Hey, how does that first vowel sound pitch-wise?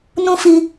high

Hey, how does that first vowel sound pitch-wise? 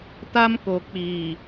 high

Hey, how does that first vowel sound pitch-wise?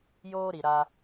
high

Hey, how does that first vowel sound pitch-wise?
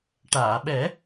low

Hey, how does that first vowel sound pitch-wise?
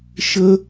high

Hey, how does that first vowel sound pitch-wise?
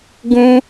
high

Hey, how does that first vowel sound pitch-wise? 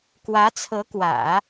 rising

